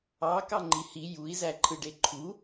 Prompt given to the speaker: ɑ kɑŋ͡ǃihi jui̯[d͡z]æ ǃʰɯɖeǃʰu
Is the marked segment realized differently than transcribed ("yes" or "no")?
yes